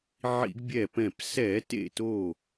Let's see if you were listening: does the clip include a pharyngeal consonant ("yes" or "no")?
yes